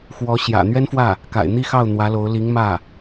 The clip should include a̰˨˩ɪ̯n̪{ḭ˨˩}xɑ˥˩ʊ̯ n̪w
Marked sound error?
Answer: yes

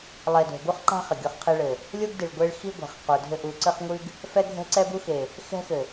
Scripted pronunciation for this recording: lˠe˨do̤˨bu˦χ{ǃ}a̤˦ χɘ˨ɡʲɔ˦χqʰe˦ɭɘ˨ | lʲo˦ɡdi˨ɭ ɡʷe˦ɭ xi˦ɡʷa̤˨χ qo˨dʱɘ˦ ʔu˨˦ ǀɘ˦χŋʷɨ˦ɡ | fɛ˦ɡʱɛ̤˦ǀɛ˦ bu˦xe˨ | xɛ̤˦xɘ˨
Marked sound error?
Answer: no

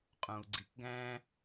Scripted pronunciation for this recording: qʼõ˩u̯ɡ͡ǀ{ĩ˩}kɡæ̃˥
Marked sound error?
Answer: yes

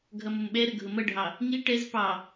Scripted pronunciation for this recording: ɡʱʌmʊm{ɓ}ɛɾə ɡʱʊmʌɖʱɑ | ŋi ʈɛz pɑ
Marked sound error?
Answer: no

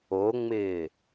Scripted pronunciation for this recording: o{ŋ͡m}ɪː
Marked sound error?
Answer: no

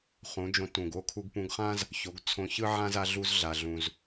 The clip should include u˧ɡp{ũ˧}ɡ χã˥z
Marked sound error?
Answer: no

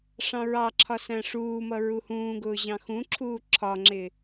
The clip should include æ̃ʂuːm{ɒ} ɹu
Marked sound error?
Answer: yes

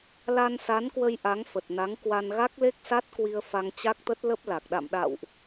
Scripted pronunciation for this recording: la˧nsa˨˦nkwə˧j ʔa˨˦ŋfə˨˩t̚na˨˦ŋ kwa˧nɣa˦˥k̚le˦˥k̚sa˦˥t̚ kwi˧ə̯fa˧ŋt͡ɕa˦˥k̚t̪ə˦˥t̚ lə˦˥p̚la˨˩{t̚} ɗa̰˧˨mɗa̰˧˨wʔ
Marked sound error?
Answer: yes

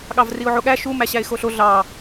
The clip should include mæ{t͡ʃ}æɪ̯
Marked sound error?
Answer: yes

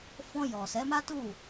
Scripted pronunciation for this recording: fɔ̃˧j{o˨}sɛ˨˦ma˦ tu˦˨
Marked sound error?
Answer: yes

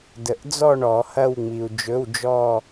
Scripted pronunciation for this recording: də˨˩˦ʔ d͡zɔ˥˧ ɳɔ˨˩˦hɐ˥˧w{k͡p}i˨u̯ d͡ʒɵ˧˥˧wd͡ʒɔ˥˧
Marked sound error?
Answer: yes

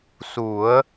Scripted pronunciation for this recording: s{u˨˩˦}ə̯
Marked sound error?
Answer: no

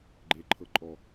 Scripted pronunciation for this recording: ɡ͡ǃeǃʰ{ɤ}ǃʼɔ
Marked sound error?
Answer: no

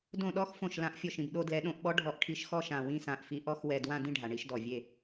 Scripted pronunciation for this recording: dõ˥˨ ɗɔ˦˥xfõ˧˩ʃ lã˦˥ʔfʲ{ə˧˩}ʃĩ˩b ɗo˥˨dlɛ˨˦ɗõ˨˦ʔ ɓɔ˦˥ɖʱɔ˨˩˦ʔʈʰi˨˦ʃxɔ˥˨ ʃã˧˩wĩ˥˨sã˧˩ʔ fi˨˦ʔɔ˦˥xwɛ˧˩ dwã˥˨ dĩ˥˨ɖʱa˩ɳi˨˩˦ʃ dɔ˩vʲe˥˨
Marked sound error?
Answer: yes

